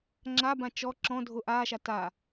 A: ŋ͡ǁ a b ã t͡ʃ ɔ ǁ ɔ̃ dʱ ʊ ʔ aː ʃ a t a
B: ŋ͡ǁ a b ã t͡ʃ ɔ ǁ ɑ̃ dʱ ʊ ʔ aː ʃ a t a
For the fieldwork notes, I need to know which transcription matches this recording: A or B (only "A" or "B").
A